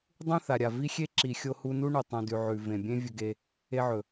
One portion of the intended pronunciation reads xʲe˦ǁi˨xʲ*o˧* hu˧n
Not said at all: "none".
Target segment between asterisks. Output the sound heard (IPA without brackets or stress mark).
o˧